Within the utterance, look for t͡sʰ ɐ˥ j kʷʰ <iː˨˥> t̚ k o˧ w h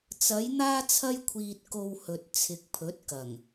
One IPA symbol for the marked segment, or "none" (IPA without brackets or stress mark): iː˧